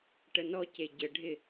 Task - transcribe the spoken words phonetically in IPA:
ʈ ə n ɔ c e ɟ ə ɖʱ ɪ

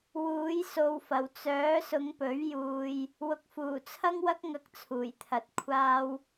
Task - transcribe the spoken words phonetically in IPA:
w uː˨˥ j s o˨ w f ɐ˨˩ w t͡s œː˨˥ s ʊ˨˧ ŋ p ɵ˨˥ ɥ j uː˧ j | w ʊ˨ k̚ f uː˨˩ t͡sʰ ɐ˥ ŋ w ɐ˥ k̚ ŋ ɐ˧ k̚ t͡sʰ uː˨˩ j t̪ʰ ɐ˨ t̚ kʷʰ aː˧ w

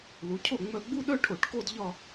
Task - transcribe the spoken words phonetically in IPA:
l u˩˧ cʰ o˥˩ ŋ͡m œ˧˩ ɡ͡b u˥˧ ɗ œ˥˧ ʈʰ o˧˩˧ ʈ k o˥˧ d ʎ ɒ˥˧

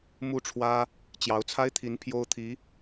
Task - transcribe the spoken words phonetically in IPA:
m u˥˩ ʈ͡ʂʰ w ä˥ | t͡ɕ j ɑ˧˥ ʊ̯ t͡sʰ a˥ ɪ̯ t̪ʰ i˧˥ n pʰ j o˥ ʊ̯ t̪ʰ i˧˥

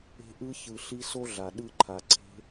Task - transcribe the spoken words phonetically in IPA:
e̤˧ ʔ ɯ˧ ç ɯ˨ ɬ i˧ s o˦ ɮ a˨ ɗ ɯ˦˨ ǃʰ a˨ ǀʰ e̤˦

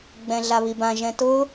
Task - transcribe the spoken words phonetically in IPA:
ɡ͡b ɛ̃ ɮ a β i b ã ʒ ɛ̃ t ʊ

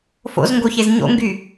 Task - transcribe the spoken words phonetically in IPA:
f o̰ z ŋ ɡ o ç e z ɲ o̰ ŋ ɡ y

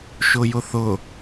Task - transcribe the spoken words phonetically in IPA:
ʃ ʊ j ʊ θ ʊ

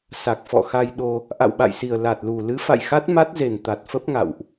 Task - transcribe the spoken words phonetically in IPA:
s a˨˩ k̚ f ɔ̰˧˨ x a˧ j ɗ o˧ | ʔ a̰˧˨ w ɓ a̰˧˨ j s i˨˩ ə̯ l a˨˩ t̚ l u˨˩ l ɨ˨˦ f a̰˧˨ j x a˦˥ t̚ m a˦˥ t̚ z e˨˩ n t̪ a˨˩ t̚ f ə˦˥ p̚ ŋ a̰˧˨ w ʔ

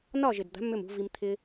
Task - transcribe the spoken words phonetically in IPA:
n ɒ˦˨ ʒ ɪ˨ d d̪ a̤˨˦ m ʏ˦˨ m ṳ˧ v i˧ m t̪ʰ ɪ˦

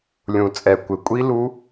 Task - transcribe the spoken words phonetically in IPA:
lʲ ũ˨˩ t͡sʼ ɛ˨˩ kʷ ɪ˨˩ kʷʼ i˦˥ l u˦˥

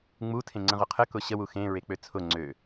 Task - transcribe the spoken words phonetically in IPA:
ŋ͡m u tʰ ẽ ŋ͡ǀ ə̃ ʁ ʊ qʰ ə k ʊ ɕ ə w u x ẽ ɹ e k͡p ø t͡sʰ ʊ ŋ͡ǀ ø

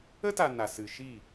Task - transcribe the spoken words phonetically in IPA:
ə˦ t a˨ n a˨ s ɨ˨ ʃ iː˦˨

